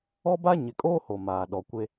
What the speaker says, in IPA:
ɔ˦ba˦ ɲɪ˨kʼoː˦ ho˨maː˨ ɗɔ˨kʷe˦

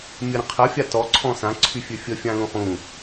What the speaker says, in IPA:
mʲəɾə̃qʰə fʲatɔ ǀʰɔ̃sã ǀʰyfʲøfʲə fʲãlũχũ

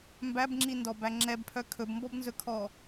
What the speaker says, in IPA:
mbæbŋ͡ǁindɔbæ ŋ͡ǁɛbpʰœ kʰɵbmbɔbnzɵkʰɔ

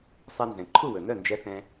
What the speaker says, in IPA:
sˤɛ˧nzɛ̃˩ ǃʰu˥˩wɵ˩nœ˥˩nd͡ʒɛ˧ θɛ̃˧

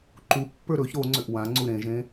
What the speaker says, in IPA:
ǃupːə˞ ɾɵç ɾo ŋ͡ǀʏʔwãŋ͡ǀu ɾẽʒẽ

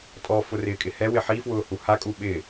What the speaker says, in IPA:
tʼɔfʊ rɪːkʼɪhɛwɪ ħifwʊː huhakʼu ɓɪː

